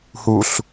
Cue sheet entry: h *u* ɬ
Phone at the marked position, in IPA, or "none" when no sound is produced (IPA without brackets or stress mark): u